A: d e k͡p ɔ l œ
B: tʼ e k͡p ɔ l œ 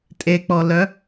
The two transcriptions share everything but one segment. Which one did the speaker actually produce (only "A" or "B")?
B